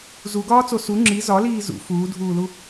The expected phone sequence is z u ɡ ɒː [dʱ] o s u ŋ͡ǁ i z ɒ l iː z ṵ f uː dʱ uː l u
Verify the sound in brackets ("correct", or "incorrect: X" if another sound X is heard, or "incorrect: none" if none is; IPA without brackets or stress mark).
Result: incorrect: t͡s